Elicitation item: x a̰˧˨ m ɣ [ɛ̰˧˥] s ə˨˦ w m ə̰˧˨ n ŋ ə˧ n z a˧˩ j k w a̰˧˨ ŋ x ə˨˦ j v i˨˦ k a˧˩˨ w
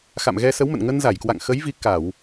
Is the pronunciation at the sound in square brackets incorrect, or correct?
incorrect